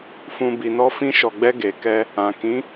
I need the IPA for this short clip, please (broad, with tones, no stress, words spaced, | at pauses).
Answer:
fũ˧ bi˨nɔ˧ fĩ˧ʃɔ˨ɡ͡bɛ˧ ɡe˨kɛ˧ | ã˨ kĩ˨˦